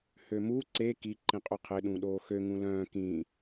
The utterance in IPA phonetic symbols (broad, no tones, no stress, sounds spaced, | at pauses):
h ø m u ǀ e k i ǃ ĩ qʼ u qʰ ɪ ɗ ũ ɗ oː x ø ŋ ũ l œ̃ː k ĩ